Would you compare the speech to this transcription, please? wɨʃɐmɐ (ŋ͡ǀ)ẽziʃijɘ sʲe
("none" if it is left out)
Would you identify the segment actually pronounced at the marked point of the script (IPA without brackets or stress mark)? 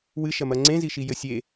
ŋ͡ǀ